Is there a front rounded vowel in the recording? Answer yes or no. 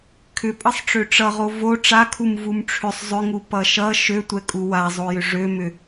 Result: yes